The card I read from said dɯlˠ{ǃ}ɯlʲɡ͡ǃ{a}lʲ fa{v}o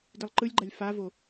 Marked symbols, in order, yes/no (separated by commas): yes, yes, yes